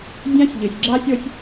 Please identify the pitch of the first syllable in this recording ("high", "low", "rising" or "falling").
high